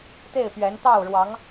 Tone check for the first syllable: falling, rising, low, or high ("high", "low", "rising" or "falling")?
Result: falling